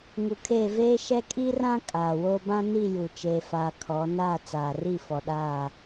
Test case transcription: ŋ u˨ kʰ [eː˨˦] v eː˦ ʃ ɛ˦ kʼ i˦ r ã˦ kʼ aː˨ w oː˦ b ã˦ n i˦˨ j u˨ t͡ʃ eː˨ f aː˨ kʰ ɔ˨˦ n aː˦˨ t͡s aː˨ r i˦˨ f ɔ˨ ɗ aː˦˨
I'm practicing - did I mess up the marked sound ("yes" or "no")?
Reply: yes